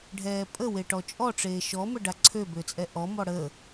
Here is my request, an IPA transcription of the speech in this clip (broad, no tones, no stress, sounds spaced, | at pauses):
ɖʱ ɛː pʼ ə w e ʈ ɔ t͡ʃʼ ɔ ʈ͡ʂ eː ʃ ɔ m ə ɖ a ǀʰ ø b ø t͡sʼ ɛ ʔ ɔ m ɔ ɽ ə